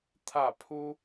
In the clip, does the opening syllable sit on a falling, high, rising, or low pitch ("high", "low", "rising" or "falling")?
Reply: falling